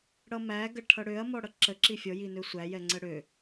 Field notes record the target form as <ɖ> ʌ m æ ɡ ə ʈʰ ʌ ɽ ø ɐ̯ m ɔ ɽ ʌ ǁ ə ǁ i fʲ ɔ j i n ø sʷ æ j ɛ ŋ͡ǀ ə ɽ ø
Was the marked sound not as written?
yes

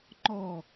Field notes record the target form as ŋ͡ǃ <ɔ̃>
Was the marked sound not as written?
yes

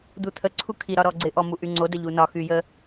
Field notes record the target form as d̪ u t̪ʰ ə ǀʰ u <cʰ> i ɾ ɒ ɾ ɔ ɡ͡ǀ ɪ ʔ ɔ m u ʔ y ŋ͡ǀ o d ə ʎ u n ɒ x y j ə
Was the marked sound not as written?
yes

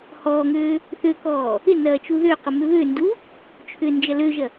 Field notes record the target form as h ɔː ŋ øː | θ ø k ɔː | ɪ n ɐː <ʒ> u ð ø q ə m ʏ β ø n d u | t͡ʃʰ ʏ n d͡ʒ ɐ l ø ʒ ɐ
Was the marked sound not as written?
yes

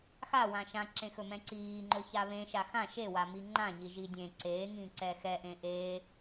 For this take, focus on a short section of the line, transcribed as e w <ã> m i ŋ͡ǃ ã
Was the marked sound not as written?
yes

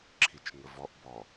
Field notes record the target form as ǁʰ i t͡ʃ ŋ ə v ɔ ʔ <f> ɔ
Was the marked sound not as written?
yes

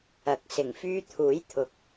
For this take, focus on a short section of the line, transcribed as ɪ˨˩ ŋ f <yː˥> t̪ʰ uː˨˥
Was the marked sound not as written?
yes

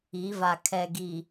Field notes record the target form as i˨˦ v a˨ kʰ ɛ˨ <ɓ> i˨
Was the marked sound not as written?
yes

